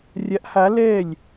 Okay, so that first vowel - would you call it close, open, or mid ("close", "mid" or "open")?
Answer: open